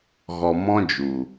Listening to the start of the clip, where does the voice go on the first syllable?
low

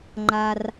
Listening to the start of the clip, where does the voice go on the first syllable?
low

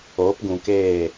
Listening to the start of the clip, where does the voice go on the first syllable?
rising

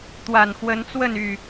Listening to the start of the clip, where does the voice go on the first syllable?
low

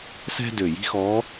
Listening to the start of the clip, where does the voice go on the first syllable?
high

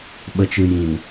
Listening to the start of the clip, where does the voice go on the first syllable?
low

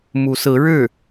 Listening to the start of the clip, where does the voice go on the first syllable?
rising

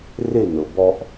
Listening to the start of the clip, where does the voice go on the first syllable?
falling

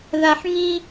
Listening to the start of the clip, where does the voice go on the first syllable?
high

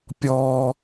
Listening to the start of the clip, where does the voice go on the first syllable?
high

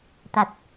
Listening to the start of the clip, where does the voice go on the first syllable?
low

